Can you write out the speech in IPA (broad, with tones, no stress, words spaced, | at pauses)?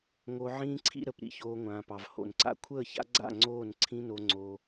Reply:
ŋo˧ʕĩː˦ ǀʰḭ˧ɾə˨p ɾḭ˧çoː˧ŋʷãː˨pɑ˨v ho̰˨nǀa̰˦ kʷʰəː˦˨ça̰˦ɡ͡ǀa̰˦˨ ŋ͡ǀoː˦˨n ǀʰĩ˦no˧ ŋ͡ǀo˧